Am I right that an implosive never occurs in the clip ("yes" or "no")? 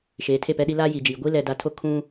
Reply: no